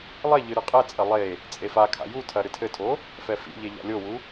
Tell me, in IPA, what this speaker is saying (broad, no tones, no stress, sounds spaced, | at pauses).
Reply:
lˠ e ʎ ɨ ɾ ɨ qʼ ɛ t͡sʼ ɐ lˠ e | t͡sʼ e f a kʰ a̰ j u tʰ ɐ ɾ ɨ tʰ ɘ tʰ o | f ɛ f ḭ ʎ e ʎ a̰ lʲ o w u